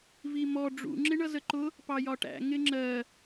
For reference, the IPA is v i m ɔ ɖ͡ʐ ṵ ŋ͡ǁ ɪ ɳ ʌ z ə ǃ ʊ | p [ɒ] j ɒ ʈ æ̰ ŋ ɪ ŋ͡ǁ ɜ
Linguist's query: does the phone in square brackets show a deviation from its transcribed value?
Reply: yes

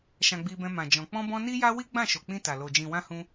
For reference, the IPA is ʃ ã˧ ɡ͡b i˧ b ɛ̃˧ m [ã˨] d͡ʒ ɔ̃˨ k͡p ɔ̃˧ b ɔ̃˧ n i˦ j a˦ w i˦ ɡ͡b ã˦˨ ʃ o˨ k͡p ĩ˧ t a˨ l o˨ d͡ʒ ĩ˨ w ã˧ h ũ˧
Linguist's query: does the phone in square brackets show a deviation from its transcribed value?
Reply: no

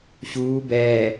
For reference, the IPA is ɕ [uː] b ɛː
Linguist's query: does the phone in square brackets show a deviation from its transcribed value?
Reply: no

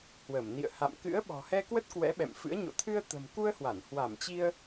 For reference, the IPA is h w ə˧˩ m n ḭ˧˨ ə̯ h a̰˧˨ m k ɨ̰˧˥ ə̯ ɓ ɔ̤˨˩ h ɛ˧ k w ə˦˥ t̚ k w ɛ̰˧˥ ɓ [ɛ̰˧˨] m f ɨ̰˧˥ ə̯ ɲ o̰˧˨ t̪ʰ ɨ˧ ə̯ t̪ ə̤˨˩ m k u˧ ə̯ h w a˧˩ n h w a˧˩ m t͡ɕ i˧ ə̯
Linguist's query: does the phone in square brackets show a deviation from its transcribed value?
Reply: no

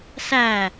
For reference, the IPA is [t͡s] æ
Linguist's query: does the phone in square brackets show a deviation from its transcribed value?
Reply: yes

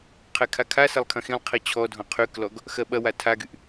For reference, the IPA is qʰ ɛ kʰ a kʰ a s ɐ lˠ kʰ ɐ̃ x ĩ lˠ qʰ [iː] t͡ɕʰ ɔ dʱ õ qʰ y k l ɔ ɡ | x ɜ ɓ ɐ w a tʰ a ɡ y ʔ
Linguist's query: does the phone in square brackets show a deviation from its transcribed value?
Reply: yes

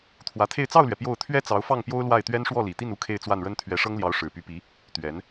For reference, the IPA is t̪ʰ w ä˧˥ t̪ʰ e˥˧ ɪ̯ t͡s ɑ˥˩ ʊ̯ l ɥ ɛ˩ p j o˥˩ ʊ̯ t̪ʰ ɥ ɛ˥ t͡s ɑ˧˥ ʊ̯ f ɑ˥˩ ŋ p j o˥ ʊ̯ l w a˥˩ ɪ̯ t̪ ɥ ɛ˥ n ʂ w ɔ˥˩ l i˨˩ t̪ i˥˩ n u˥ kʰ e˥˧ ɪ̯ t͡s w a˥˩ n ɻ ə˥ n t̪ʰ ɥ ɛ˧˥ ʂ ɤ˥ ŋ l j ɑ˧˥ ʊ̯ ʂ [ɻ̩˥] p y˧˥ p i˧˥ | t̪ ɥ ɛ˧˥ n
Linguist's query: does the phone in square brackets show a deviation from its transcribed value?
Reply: yes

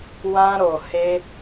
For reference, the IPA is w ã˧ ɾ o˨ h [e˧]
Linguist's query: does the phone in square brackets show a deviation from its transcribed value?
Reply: no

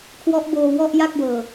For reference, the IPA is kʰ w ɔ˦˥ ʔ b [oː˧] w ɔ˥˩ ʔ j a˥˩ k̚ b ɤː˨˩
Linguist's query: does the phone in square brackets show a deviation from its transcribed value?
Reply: no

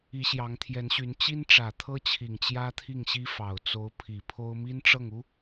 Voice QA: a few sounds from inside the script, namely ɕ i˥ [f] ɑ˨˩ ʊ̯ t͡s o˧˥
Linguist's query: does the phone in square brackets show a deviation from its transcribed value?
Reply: no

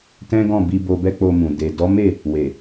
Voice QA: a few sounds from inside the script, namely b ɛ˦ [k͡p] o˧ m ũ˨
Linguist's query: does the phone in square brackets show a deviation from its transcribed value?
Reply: no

